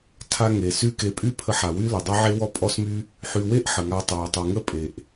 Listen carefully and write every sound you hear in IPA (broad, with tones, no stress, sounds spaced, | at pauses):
tʰ a˧ ŋ e˨ s y˦ k e˧ pʼ y˦ pʰ ə˧ ħ a˨ w y˦ l ə˨ dˤ e˦ ʕ e˦ w ɔ˦ pʼ ɔ˦ s m y˦ | ħ y˧ w e˦ ʔ ħ ə˨ ŋ a˧ tˤ a˨ w tˤ y˨ ŋ ə˦ pʼ e˨ ʔ